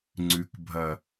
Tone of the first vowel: low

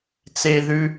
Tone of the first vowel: high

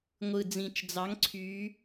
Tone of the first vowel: low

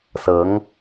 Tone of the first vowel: rising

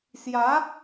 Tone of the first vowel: rising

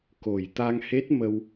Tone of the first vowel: low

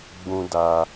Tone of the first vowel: high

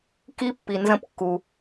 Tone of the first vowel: rising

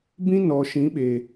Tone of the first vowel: high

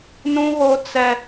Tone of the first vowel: high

